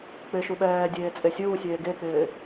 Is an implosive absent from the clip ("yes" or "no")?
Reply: no